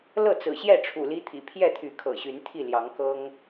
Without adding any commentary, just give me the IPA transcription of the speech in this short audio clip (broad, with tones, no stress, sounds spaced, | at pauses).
l ɤ˥˨ t͡s ɹ̩˨˩ ɕ j ɛ˥˨ ʈ͡ʂʰ ṵ˨˩ l i˦ t̪ʰ ḭ˨˩ pʰ j ɛ˥˨ t̪ʰ y˨˦ kʰ ɤ̰˨˩ ɕ y˨˦ n t̪ʰ i˥˨ l j ɑ˨˦ ŋ k ɤ˦ ŋ